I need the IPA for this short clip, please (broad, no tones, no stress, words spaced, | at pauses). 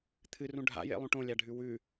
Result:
t̪ʰɨrũ ɖʱa̰jḛlˠũ ʈõlʲaɖʱʉ wʉ